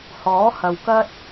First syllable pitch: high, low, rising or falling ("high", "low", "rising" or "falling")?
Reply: rising